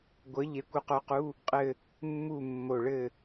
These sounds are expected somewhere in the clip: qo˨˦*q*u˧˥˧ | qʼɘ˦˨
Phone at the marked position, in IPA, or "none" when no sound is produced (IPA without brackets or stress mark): q